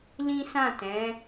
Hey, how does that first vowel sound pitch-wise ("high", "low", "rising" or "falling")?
high